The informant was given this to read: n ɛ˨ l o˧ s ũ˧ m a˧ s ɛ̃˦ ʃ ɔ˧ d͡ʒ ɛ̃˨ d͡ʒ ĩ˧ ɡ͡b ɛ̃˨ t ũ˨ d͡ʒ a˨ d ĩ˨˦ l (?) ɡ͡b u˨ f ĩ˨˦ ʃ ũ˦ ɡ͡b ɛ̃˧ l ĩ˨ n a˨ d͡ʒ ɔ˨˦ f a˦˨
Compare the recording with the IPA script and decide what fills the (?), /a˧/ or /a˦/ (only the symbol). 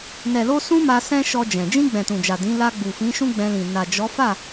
a˧